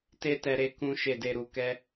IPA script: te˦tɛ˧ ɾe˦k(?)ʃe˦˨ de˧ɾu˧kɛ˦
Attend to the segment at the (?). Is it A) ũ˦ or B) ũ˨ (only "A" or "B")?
A